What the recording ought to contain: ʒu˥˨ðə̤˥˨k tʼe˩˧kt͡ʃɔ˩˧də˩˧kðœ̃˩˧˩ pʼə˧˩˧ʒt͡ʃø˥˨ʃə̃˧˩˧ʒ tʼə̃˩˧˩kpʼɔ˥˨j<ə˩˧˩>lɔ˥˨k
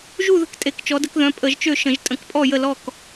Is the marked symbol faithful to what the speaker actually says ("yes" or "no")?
no